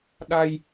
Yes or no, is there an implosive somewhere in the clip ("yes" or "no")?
yes